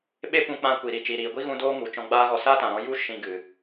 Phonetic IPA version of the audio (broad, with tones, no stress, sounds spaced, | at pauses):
ɓ e˦ p ũ˧ k͡p ã˧ kʷ i˨ ɾ i˨ t͡ʃ iː˨ ɾ iː˨ ɡʷ i˦ ɣ ũ˧ d oː˦ ŋ u˨ t͡ʃ ɔ̃˧ ɡ͡b aː˦ ɣ ɔ˧ s aː˦ t ã˨ ɾ ɔ̃˧ j u˦ ʃ ĩ˧ ɡ ɨ˨